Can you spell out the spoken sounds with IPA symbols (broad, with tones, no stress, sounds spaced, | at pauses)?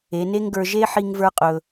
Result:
e˩˧ n e˥ ŋ ɡ ə˞˧ ʒ e˥ ħ i˧ ŋ v ə˞˧ qʼ ɵ˩